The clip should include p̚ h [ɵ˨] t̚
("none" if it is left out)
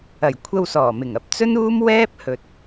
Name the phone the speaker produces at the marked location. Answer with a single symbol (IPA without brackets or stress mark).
ɵ˨